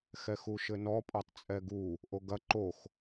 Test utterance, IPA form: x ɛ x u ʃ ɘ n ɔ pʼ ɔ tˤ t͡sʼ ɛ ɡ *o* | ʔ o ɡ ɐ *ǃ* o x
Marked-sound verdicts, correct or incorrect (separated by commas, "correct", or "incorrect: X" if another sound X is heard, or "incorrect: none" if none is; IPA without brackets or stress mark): incorrect: u, correct